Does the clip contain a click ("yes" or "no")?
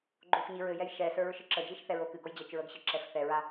yes